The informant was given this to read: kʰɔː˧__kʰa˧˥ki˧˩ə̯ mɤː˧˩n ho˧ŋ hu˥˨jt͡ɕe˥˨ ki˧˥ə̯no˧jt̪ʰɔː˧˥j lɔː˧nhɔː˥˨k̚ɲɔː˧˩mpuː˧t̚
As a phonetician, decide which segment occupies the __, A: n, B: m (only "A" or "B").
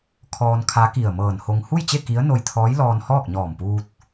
A